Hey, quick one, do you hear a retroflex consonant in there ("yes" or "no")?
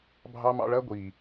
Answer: yes